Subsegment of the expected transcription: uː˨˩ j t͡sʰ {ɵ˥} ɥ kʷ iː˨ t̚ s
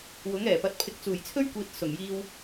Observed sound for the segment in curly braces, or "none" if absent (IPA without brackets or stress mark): ɵ˥